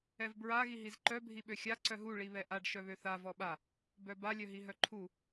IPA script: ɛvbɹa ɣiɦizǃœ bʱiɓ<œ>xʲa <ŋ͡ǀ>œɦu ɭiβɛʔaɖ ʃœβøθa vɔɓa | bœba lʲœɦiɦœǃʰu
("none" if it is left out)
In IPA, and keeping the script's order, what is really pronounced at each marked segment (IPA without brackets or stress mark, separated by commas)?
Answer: ø, ǀ